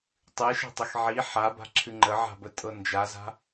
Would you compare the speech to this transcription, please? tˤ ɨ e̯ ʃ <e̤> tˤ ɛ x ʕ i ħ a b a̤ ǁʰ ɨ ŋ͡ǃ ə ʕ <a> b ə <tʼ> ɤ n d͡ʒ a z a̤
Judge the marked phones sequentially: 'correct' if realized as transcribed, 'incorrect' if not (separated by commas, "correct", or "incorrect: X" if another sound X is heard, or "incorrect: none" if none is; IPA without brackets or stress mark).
incorrect: ɛ̤, incorrect: a̤, correct